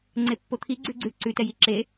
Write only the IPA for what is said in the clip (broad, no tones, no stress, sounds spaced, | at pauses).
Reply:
ŋ͡ǀ e pː o t̪ʰ i ɡ͡ǀ ʉ ɡ͡ǀ ʉ ǀ ʉ t ɛ j i ǁ e